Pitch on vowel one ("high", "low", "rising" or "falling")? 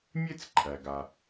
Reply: high